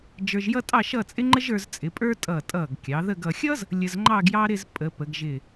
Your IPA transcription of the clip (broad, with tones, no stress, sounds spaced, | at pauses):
d͡ʒ ə˞˧ ʒ j ʌ˥ tʼ ɑ˥˧ ʃ ʌ˥˧ t͡sʼ ɪ˥ ŋ͡ǃ ə˥ ʒ ə˞˧ z t͡sʼ ɪ˩˧ pʼ ə˞˥ tʼ ʌ˧˩ tʼ ʌ˧˩ ɡ kʲ ɑ˩˧ ð ə˥˧ ɡ ʌ˧ xʲ ʌ˥ z | lʲ ə˧ z ŋ͡ǃ ɑ˥˧ ɡ j ɑ˥ ɾ ɪ˥˧ z pʼ ə˩˧ p ə˩˧ ɡ ʒ ɪ˧˩